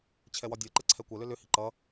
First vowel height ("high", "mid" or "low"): mid